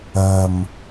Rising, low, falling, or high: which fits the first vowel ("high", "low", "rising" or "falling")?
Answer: low